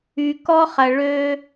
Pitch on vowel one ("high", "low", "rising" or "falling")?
low